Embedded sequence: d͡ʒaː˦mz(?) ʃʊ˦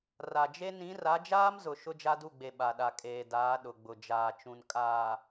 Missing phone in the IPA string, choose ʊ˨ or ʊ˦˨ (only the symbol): ʊ˨